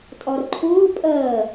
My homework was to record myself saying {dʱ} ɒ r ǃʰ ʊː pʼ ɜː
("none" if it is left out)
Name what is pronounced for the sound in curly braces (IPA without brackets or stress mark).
tʼ